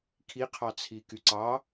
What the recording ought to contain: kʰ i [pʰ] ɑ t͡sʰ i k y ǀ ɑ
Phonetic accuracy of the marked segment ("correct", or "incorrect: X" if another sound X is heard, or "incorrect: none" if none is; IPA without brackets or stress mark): incorrect: qʰ